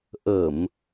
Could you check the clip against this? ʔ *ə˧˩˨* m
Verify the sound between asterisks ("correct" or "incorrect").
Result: correct